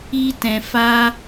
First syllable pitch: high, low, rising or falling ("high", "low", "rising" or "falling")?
high